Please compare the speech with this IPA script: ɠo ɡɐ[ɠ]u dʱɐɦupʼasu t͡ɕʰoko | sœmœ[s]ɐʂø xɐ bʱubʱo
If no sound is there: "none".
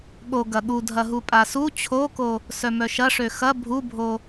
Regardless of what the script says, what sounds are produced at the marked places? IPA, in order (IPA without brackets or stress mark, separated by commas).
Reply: ɠ, ʃ